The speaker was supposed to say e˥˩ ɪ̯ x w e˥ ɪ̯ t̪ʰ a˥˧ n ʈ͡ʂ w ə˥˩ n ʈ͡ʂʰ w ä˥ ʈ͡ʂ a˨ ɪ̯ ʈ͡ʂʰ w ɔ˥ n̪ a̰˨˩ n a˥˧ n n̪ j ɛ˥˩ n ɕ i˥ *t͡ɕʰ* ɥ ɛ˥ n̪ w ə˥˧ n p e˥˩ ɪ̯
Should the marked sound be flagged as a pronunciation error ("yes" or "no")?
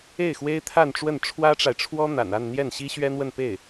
yes